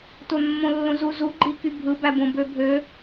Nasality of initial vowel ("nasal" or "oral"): oral